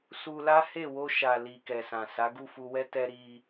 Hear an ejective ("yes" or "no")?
no